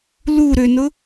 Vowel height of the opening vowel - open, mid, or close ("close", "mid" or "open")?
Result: close